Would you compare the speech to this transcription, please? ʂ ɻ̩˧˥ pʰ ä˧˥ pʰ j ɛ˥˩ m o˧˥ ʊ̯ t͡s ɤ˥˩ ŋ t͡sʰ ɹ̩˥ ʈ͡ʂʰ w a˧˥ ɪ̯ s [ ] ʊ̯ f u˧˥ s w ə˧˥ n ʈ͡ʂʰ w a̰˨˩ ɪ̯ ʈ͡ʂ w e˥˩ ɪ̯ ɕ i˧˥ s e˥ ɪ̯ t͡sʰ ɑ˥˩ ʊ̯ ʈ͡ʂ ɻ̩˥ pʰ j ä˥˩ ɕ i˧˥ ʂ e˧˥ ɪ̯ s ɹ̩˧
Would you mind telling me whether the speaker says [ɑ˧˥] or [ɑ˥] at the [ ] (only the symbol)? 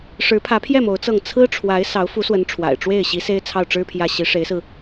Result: ɑ˧˥